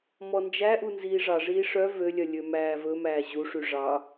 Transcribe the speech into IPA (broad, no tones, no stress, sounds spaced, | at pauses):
m ɔ n d͡ʒ æ ʔ u n z iː ʐ ɑ ʐ iː ʂ œ v ø lʲ œ lʲ ø m æː v ɵ m æː ʑ u ʂ y ʐ ɑ